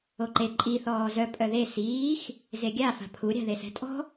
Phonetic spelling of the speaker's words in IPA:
oǃe ǃʼi θɔːzœ pʼœðe siːx | zeɡʲa fa̤pʰu ɾʲa̤ðesɛ̤tʼɔ̤

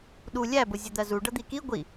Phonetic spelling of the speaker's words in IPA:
ɗu lʲæbʊ zʲʊd̪ɜzu ɖʌd̪iki ɡʷi

